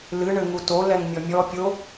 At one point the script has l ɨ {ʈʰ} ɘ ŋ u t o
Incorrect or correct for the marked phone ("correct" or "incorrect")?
incorrect